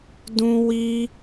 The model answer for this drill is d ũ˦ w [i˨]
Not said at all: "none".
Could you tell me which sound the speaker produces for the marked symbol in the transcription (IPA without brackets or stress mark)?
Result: i˦